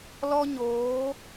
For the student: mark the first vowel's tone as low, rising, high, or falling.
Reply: high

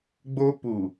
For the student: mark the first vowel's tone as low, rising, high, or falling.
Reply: high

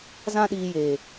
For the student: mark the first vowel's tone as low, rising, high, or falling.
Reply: high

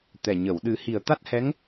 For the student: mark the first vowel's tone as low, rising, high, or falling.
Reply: low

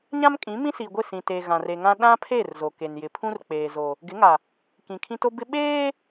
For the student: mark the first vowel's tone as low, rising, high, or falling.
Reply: high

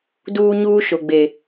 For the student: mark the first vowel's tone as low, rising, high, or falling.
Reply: high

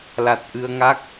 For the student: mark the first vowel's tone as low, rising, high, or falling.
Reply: low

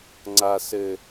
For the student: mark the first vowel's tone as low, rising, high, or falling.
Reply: low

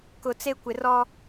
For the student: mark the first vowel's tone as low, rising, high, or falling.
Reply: low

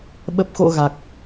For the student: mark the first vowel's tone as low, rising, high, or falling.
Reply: low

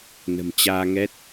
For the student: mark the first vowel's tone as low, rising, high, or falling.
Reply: low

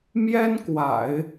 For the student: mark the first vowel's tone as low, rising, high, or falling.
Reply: high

